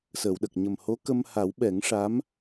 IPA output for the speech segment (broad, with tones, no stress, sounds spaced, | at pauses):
s əː˨˩˨ w ɗ ə˨˩ k̚ ɲ ə˨˩ m h o˧˥ k ə˧ m h a˨˩˦ w ɓ ɛ˨˩˦ ŋ ʂ a˧˥ m